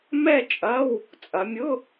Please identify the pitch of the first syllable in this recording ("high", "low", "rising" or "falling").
falling